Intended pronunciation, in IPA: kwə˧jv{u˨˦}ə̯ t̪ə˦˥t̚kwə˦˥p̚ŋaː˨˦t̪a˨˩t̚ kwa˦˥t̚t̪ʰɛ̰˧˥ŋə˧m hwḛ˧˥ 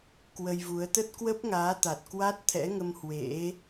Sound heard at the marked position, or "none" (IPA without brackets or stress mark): u˨˦